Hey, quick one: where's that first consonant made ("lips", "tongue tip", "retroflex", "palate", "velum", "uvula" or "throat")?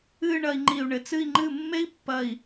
retroflex